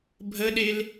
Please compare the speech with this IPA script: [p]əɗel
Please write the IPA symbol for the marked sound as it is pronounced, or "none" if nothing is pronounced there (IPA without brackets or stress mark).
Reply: bʱ